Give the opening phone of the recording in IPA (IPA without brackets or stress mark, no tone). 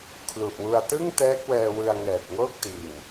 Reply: kʰ